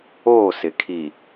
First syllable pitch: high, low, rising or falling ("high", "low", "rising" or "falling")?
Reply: falling